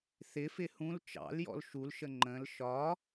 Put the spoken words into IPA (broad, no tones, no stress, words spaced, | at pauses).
θɪfɪ hũl t͡ʃɑ̰ljɔ̰l ʃulʃə ŋ͡ǃə̃l ʃɒ